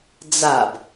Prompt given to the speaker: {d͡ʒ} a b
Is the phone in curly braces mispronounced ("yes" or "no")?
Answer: yes